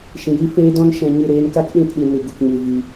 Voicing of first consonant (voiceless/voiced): voiceless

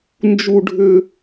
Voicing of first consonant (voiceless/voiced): voiced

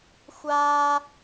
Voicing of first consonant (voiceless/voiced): voiceless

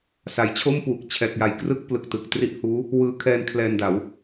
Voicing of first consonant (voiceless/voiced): voiceless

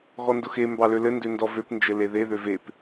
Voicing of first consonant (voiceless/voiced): voiced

